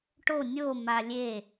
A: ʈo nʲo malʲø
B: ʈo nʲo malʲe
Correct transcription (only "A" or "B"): B